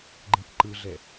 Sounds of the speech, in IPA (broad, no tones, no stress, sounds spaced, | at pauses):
ɡ͡ǃ ĩ k ǃ ɯ ɮ ɛ